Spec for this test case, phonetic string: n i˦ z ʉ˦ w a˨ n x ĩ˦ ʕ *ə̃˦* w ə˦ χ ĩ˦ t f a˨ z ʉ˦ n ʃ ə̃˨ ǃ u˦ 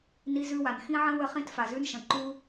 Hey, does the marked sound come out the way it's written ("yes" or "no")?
yes